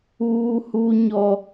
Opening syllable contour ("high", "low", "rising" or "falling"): high